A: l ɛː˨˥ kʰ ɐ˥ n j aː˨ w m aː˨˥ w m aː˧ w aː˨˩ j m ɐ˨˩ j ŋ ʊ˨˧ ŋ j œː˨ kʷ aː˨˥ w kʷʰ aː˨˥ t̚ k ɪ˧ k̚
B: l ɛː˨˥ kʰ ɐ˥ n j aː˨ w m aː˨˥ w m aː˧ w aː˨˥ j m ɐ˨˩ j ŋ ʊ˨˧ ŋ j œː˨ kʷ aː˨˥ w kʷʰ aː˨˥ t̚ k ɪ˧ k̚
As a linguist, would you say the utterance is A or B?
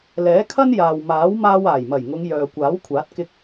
A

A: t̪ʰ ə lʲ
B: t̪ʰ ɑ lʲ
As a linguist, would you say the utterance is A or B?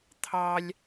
B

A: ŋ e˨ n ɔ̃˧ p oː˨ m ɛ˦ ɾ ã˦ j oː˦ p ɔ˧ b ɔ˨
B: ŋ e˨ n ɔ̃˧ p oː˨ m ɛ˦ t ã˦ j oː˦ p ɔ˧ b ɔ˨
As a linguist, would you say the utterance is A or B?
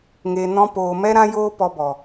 A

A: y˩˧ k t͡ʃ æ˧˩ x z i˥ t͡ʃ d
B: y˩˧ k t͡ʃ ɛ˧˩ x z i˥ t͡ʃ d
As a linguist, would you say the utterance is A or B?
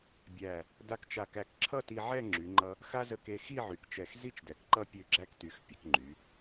B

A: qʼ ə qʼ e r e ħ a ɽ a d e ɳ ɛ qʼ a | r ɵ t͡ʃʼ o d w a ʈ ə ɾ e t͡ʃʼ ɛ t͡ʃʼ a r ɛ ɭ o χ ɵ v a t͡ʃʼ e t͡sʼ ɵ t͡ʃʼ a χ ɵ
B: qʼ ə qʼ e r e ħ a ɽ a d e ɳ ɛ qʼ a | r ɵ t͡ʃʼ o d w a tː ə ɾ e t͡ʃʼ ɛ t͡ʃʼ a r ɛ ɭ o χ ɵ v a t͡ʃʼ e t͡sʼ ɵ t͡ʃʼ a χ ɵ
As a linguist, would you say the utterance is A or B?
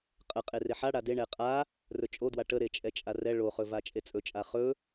A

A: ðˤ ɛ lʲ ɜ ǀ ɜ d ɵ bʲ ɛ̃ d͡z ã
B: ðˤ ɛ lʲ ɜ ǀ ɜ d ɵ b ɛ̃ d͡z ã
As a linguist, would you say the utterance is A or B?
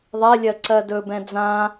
B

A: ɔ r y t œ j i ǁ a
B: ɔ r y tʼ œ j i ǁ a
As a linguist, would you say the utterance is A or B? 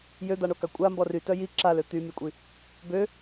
A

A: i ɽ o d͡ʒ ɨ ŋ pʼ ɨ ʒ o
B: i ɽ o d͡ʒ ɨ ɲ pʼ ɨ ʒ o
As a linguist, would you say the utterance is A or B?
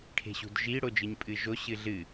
B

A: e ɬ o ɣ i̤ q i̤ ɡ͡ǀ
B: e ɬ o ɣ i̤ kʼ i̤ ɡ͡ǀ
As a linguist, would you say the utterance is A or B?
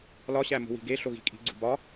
B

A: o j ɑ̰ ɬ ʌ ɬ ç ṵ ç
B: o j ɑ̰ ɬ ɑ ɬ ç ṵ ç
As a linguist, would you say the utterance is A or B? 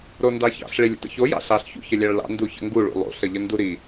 B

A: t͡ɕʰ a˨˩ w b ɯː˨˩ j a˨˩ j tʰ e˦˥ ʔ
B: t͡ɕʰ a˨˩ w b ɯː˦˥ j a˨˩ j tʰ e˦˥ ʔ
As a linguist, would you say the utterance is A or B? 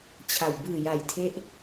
A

